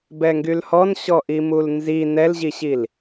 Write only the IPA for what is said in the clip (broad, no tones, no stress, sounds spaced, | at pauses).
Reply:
b ɛ ŋ ɡ y l h ɔ n ɕ ɔ ʔ i m u l n z i n ɛ l ʑ i ɕ i l